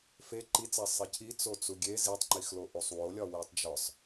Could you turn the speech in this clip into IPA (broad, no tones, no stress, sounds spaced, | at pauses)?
f e ǃ i t͡s æ sˤ e cʰ i t͡s o t͡s u ɡʲ e z i tˤ ŋ͡ǃ i x l o ʔ u sˤ w o lʲ ɒ w i tˤ d͡ʒ ɒ sˤ